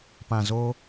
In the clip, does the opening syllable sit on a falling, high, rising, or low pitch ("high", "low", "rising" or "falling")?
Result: low